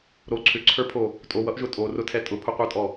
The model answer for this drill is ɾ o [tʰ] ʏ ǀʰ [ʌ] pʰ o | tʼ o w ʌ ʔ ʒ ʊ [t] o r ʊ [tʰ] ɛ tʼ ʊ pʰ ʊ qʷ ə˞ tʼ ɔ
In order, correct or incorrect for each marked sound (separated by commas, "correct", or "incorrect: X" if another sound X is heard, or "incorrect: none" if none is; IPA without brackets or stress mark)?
incorrect: ǀʰ, incorrect: ə˞, incorrect: tʼ, correct